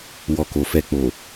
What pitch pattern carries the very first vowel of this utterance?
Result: low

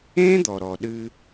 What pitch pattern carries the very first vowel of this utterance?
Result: high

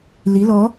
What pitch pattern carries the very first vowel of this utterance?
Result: rising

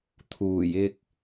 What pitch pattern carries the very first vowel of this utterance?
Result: low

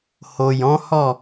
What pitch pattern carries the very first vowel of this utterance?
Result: low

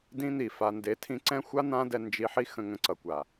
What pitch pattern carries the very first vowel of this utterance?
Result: high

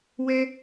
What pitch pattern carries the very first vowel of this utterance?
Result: high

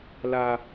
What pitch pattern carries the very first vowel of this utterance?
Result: high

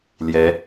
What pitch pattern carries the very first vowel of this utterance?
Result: rising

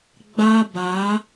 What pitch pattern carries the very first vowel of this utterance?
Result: high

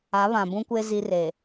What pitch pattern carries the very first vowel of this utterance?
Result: rising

